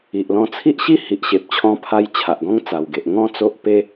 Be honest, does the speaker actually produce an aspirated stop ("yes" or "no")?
yes